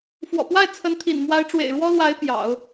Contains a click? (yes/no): no